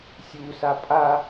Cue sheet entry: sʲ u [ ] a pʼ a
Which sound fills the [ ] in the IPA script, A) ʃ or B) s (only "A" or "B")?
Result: B